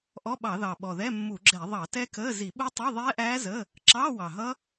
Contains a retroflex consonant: no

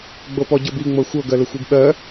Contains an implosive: yes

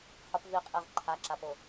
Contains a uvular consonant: yes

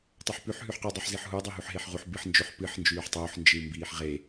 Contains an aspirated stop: no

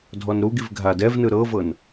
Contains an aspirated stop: no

